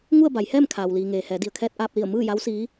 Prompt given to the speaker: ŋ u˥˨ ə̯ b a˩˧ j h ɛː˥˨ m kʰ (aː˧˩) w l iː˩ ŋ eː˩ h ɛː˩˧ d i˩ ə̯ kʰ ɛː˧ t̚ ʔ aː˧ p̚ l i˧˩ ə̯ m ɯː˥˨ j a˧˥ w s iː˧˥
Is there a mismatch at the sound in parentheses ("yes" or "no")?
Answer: yes